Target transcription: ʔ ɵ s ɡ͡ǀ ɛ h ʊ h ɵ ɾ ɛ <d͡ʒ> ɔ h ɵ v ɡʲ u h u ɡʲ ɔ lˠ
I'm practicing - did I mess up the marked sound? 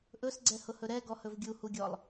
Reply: yes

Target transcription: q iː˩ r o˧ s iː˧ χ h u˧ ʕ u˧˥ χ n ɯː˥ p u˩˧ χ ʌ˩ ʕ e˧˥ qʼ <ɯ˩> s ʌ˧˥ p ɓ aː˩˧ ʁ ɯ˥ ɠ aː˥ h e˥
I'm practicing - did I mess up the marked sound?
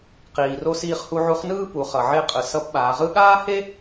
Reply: no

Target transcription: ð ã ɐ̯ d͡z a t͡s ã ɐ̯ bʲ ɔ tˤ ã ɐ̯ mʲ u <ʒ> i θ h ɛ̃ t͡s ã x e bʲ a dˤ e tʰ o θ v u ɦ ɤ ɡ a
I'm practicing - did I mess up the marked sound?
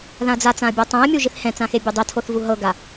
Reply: no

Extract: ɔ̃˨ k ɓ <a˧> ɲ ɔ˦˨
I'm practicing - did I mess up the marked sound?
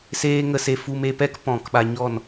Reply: no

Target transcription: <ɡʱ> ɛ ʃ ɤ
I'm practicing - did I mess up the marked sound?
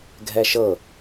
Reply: no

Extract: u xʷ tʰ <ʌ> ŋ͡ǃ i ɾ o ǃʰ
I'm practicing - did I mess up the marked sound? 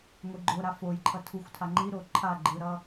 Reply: yes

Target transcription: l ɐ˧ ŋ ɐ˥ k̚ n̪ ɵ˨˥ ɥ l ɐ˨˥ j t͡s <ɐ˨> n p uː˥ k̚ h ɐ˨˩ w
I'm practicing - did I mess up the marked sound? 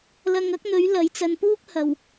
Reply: yes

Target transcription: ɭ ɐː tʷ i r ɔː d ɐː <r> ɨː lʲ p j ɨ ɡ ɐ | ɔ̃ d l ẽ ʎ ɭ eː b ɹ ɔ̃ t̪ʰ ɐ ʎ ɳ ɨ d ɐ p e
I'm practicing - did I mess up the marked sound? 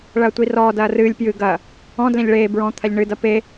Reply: no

